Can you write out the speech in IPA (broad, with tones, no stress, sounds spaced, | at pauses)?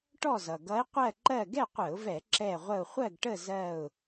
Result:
ʈ ɔ˥˨ z ʌ˩ ɡ ʌ˧˥ ɪ̯ qʷ ɜ˥˨ ǃ ɜ˥˨ ɡ ɛ˥˨ qʷ ə˧˩˧ ʊ̯ v ɛ˧˩˧ ǁ ɛ˧˩ ʁʷ ə˧˩ ʊ̯ χʷ ɜ˥˨ ɡ ʈ ə˥˨ z ɜ˧˩ ʊ̯